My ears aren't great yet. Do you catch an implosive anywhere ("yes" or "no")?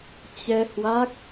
no